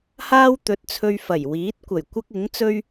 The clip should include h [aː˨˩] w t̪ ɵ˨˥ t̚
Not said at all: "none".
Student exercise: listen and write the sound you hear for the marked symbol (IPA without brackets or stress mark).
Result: aː˥